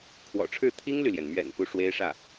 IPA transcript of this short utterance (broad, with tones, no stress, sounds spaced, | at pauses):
kʰ w ɔ̰˨˩ ʈ͡ʂʰ ɻ̩˥˩ t̪ʰ i˥ ŋ l y˨ l j ɛ˩ n m ɥ ɛ̰˨˩ n p u˥ ʂ w e˥ ɪ̯ ʂ ä˥˩